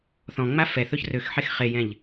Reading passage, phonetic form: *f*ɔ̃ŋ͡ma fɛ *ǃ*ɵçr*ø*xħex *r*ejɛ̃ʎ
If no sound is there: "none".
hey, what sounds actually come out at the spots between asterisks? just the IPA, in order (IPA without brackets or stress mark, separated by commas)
θ, θ, ø, χ